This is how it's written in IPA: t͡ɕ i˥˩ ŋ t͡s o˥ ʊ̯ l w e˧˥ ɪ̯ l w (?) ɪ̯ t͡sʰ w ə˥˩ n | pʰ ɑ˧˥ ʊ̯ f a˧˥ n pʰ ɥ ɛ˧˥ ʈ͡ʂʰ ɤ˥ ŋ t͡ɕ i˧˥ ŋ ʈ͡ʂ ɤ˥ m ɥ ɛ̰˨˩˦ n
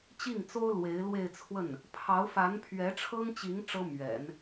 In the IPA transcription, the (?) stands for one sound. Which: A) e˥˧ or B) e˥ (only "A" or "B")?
A